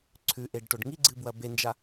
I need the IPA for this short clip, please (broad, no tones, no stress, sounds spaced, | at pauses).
ǀʰ ʉ ʔ e ɖ ʈ o ɖ ŋ i ɡ͡ǀ ɨ b w ɐ b e n d͡ʒ a